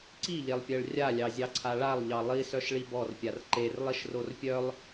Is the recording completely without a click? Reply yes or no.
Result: no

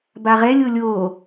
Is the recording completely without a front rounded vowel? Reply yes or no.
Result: yes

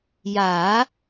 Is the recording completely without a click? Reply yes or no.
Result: yes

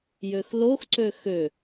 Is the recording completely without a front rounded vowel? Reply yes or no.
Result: no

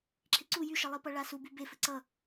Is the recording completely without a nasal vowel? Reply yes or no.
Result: yes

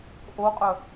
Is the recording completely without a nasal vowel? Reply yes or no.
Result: yes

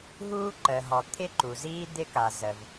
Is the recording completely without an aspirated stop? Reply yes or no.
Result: no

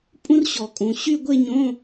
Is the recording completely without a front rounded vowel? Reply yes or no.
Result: no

